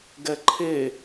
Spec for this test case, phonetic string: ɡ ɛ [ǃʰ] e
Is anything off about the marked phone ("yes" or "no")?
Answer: no